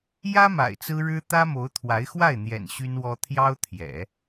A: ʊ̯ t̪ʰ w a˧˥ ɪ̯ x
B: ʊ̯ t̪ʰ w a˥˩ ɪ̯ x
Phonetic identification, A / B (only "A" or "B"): A